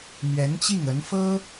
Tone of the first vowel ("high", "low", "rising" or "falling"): rising